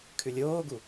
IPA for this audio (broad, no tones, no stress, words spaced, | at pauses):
kʰʉlʲoːɡu